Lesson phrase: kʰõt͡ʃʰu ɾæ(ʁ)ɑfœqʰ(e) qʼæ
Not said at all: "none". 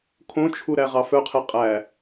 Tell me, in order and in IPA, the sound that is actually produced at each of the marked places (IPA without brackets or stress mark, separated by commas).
ʁ, e